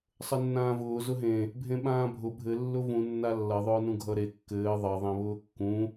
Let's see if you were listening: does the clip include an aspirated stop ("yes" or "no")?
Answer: no